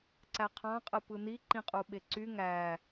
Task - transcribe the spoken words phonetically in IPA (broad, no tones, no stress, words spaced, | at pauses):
ǀæqʰɑ̃ qʼɯpɯni ǃĩqʼuɓeǀy ŋæ